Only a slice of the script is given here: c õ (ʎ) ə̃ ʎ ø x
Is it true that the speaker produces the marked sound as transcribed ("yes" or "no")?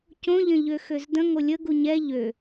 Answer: yes